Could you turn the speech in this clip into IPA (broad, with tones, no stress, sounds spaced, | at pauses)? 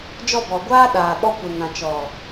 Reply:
d͡ʒ ɔ˦˨ b ɔ˨ ɡʷ aː˦ ɗ aː˨ ɓ ɔ˧ kʷ e˨ ŋ ã˨ t͡ʃ ɔ˨